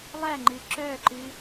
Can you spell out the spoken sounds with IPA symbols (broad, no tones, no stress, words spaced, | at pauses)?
lˠæŋ͡ǃɨ ǁœǃɨ